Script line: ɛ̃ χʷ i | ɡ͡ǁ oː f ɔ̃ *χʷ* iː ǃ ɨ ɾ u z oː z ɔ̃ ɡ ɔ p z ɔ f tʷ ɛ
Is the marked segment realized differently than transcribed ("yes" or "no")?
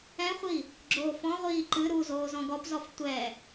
yes